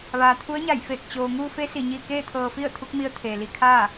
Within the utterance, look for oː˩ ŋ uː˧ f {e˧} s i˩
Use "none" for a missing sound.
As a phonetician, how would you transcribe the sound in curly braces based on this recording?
e˧˥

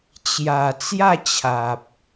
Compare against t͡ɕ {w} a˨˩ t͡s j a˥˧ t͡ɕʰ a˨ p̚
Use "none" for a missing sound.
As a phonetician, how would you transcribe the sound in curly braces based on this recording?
j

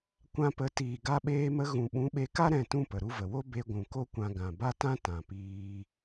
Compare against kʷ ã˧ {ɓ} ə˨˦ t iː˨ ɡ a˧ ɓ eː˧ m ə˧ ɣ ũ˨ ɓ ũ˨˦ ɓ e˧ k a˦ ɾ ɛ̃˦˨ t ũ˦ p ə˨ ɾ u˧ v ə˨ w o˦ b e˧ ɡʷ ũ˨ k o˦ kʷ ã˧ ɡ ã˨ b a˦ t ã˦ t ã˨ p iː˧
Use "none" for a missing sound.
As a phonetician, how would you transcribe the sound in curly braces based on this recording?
p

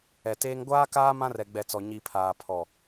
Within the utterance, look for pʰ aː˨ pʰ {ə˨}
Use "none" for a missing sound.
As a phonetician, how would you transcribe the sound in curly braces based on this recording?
ɔ˨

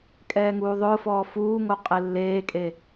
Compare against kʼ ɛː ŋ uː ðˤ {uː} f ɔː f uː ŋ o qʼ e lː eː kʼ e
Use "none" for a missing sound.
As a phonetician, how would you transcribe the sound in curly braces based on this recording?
ʊː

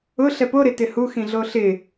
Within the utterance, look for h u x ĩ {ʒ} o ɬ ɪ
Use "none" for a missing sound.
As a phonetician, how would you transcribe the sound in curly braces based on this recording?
ɮ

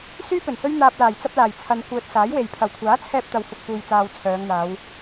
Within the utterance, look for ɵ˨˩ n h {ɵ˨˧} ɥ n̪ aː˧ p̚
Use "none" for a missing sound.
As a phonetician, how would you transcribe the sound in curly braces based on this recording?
ɵ˥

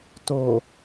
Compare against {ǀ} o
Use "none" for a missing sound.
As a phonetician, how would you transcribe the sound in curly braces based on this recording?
t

